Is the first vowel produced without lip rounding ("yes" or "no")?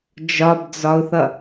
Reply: no